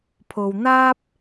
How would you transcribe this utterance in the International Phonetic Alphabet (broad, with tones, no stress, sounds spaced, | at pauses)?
pʰ o˨ w n̪ aː˥ p̚